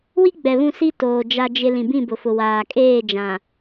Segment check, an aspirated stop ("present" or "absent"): absent